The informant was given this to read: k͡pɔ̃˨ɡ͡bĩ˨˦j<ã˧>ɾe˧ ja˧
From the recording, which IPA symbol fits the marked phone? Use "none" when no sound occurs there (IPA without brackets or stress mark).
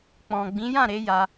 ã˦˨